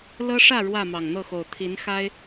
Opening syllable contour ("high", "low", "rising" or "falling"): high